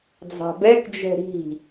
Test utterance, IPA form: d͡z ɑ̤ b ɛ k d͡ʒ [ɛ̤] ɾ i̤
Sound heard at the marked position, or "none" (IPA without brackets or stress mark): ɛ̤